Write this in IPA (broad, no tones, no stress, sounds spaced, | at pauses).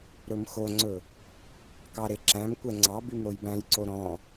ɾ ɵ m x o ŋ͡ǀ ɵ | k ɑ ɾ e ǁ æ̃ m kʷ ɛ ŋ͡ǀ ɑ b y m ɾ o j b æ̃ j ǀ o ɾ ɔ̃